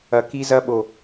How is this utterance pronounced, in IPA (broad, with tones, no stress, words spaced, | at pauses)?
ɐ˨ki˦zɐ˦ɓo˨